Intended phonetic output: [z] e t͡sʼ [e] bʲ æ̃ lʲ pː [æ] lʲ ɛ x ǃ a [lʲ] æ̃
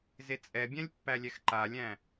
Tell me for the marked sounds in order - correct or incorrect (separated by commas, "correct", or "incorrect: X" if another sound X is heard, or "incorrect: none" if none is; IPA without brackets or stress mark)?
correct, incorrect: ɛ, correct, correct